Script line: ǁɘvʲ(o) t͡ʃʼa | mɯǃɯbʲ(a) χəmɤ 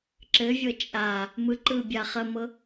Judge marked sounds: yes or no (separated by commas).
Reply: no, yes